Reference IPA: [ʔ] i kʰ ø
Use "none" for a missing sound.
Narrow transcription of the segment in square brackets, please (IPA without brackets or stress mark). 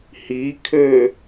h